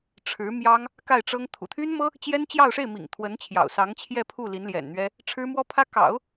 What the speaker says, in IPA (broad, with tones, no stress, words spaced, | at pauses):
ʈ͡ʂʰɻ̩˧˥mjɑ˥ŋ | ka˥˩ɪ̯ʈ͡ʂɤ˥ŋ t̪ʰṵ˨˩t̪ʰy˥nmɤ˥ | t͡ɕjɛ˥nt͡ɕjɑ˥˧ʊ̯ʂe˥˩ɪ̯mḭ˨˩ŋ t̪ʰwə˧˥nt͡ɕʰjɑ̰˨˩ʊ̯sɑ˧˥ŋ t͡ɕʰjɛ˥˧pʰu˥˩ li˧˥nljɛ̰˨˩nn̪ɥɛ˥ | ʈ͡ʂʰɻ̩˥mwɔ˥pʰä˥ kɑ̰˨˩˦ʊ̯